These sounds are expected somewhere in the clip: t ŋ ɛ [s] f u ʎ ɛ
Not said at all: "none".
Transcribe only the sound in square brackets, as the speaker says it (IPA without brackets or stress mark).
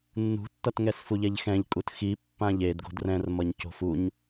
s